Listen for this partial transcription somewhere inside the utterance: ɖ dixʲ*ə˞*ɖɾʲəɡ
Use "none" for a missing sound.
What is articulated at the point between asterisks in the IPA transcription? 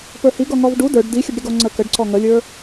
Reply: ə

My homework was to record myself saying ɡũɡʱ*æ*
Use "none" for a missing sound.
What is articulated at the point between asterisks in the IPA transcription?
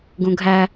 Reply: æ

